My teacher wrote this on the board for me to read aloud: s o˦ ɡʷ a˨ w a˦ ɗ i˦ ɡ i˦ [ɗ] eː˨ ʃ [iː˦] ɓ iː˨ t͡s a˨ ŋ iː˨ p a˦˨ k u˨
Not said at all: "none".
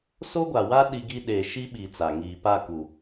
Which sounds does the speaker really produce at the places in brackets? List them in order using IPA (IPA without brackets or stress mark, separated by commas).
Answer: ɗ, i˦